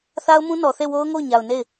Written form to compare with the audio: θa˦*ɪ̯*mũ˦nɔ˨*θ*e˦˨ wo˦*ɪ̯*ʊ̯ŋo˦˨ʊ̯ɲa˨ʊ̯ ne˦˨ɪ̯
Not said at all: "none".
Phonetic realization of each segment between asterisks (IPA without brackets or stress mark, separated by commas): ʊ̯, θ, none